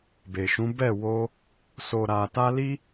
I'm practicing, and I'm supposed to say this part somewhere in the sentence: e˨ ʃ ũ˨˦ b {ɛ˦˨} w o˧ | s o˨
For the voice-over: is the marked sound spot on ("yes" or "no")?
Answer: yes